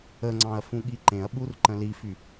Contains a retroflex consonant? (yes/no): no